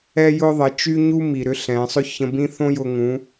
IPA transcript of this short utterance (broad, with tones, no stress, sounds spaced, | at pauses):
ɛ˧ j ʊ˧ ðˤ ə˩˧ t͡ʃ y˥ ɲ u˥ m i˩ ɾ ʏ˧˥ ɬ ɛ̃˩˧ sˤ ʏ˥ ç ə̃˧ b ĩ˥ θ õ˥ j ʊ˧ ŋ ũ˩˧